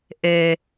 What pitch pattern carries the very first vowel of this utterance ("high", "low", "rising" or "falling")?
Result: high